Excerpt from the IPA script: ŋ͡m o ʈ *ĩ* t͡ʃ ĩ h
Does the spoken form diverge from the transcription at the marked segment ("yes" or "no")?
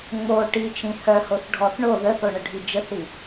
yes